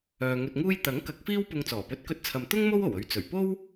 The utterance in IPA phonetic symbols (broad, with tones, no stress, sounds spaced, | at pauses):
œː˧ ŋ ɵ˧ t̚ ŋ uː˥ j t̪ ɐ˨˥ ŋ k ɐ˨˥ k̚ f iː˥ w p ʊ˧ ŋ t͡s ɔː˨˩ p ɵ˨˥ t̚ k ɵ˧ t̚ t͡sʰ ɐ˨ m t̪ ʊ˥ ŋ m o˥ w o˨˩ w ɵ˨˧ ɥ t͡s ɵ˨˩ ɥ p o˥ w